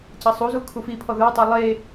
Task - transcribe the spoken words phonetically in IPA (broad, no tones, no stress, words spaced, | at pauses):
cɐsˤuzu kʰufipʰɔ ðə˞tˤu lˠe